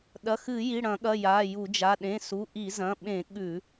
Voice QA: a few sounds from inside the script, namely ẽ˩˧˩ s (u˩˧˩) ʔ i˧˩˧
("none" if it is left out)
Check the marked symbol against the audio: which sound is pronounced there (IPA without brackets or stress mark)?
u˩˧˩